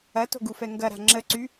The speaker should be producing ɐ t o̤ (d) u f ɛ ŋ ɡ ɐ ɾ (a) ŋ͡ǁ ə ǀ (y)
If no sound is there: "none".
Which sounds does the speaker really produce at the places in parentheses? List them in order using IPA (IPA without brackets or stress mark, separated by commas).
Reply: ɡ, a̤, y